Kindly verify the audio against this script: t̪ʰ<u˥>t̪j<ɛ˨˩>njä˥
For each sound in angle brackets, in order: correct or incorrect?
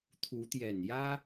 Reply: incorrect, correct

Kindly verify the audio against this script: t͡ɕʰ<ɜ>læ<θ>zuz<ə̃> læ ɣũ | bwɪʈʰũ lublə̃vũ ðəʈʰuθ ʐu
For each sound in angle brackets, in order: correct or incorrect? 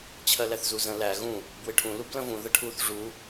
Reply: correct, correct, correct

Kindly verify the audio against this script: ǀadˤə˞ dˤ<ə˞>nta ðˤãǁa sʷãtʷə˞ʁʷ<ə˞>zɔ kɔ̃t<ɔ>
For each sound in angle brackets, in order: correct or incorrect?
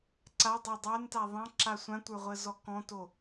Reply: incorrect, incorrect, incorrect

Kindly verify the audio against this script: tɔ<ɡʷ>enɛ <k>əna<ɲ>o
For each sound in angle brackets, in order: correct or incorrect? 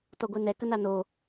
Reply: correct, correct, incorrect

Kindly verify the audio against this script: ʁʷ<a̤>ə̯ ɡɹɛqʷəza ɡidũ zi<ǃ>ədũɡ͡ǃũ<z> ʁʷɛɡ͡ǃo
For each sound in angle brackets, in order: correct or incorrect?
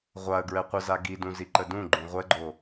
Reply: incorrect, correct, incorrect

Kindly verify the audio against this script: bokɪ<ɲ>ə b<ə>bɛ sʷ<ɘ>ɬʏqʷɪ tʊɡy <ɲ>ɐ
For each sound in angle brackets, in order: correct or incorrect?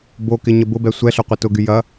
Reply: correct, incorrect, incorrect, incorrect

